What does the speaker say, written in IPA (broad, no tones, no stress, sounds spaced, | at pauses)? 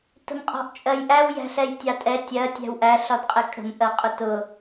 t ə̤ m qʼ ɔ̤ ʔ t͡ʃʼ ɜ j ʔ æ w j æ̤ ɬ ɛ j tʲ ɑ tʼ ɛ tʲ ɜ tʲ æ̤ w ʔ æ ɬ ɒ d qʼ ɛ kʼ ə̤ m ʔ ɜ qʼ ʊ t ʊ